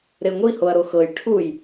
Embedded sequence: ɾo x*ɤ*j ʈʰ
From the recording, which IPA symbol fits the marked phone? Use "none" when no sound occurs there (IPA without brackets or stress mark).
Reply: ɤ